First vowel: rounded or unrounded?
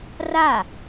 unrounded